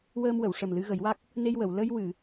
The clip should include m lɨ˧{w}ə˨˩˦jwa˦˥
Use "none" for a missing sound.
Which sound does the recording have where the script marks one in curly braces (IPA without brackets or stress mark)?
ɣ